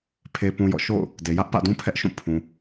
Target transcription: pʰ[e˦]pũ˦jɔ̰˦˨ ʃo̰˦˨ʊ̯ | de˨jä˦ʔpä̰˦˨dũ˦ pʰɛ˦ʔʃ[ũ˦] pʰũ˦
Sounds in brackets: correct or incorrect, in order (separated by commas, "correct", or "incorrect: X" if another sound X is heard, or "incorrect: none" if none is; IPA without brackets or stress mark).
correct, incorrect: ũ˦˨